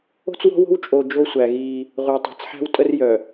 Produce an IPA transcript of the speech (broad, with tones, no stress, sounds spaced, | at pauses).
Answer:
o̤˦ t͡s w ɔ̤˦ w o̤˦ w t͡ʃʼ o˨ d͡ʒ o˦ sʷ æ˨ ɣ iː˦ | ʁʷ œː˨ tˤ æ̤˨ t͡s ħ æ̤˦ w tʼ ə˦ r j œ˨